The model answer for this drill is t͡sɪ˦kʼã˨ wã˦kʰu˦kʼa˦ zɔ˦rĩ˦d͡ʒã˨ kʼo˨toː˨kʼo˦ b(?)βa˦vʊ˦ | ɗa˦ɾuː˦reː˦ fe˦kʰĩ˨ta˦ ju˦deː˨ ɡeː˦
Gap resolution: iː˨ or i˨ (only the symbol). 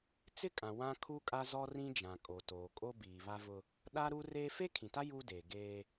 iː˨